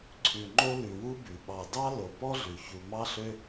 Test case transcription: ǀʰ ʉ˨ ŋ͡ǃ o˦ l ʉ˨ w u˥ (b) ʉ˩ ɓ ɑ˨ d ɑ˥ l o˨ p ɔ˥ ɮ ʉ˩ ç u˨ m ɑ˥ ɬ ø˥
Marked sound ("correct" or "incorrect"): correct